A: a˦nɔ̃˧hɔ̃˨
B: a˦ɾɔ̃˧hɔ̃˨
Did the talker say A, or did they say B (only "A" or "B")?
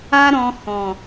B